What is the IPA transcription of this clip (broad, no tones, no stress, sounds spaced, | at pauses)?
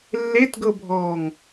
lː e t ɡ ɤ bʱ ɔː ŋ